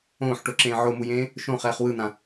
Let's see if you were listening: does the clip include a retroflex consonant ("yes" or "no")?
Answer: yes